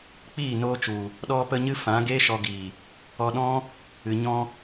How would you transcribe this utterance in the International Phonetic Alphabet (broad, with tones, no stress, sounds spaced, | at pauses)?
k͡p iː˦˨ n oː˧ t͡ʃ u˨ | ɗ ɔ˧ p ə˧ ɲ ɨ˦ f ã˨˦ ɡ eː˦ ʃ ɔ˧ ɡ iː˨ | ɔ˧ ɗ ɔ̃˦ | ɨ˨ ɲ ɔ̃˧